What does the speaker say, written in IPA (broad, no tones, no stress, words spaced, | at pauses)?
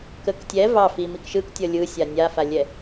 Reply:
kək tʲɛ vɑ fimik ʃɯktʲʌ lʲɯsʲa nʲafalʲɛ